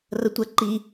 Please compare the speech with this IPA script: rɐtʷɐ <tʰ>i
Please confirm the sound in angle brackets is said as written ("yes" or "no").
no